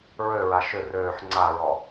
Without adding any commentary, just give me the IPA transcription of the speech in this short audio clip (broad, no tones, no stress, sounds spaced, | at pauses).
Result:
ɹ ø ɹ a ʃ ʏ r øː ħ ŋ͡ǀ a ɹ ɔ